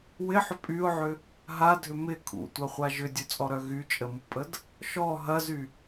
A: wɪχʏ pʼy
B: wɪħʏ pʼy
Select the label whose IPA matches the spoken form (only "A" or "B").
B